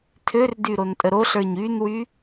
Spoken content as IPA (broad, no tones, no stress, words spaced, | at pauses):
tʰørdy ɾontʼəɾoɬə˞ɲ ynwy